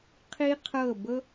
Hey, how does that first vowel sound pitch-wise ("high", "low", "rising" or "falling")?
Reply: high